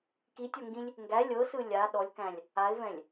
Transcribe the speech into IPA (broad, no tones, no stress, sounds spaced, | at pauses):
k i tʲ ɔ ŋ ɡ ĩ lʲ | ŋ ɡ æ lʲ ɤ s ɯ lʲ a ɗ ɔ lʲ k æ̃ lʲ | a ɪ̯ v ɛ̃ lʲ